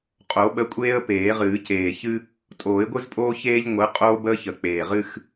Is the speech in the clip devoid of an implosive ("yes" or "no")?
no